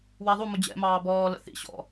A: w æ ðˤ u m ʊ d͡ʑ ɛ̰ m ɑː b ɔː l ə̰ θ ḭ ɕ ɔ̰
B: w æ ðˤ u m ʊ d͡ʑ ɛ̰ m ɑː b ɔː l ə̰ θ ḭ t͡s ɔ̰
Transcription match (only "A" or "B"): A